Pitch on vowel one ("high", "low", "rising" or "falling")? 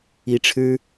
rising